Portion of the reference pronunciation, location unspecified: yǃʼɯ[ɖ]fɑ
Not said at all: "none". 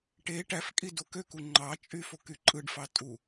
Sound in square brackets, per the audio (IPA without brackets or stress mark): ɖ